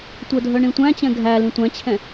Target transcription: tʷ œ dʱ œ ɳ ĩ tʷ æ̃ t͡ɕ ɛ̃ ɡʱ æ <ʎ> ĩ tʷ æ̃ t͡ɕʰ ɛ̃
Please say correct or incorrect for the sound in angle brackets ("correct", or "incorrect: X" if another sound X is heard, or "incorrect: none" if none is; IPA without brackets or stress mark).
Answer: incorrect: l